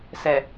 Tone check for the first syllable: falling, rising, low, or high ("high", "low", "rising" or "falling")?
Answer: low